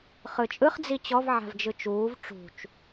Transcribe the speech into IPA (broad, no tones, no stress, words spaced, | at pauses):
χɯt͡ʃʼɯχ d͡zit͡ɕɔv ʕa̤vd͡ʒɯt͡ʃuːv ʈ͡ʂṳt͡ʃ